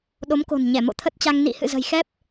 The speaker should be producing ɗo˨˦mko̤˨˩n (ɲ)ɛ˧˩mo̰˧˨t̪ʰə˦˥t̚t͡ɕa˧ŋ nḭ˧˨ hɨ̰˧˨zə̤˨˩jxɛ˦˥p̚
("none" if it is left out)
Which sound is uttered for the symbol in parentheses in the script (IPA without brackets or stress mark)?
ɲ